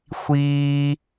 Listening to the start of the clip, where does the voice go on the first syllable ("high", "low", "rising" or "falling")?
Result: high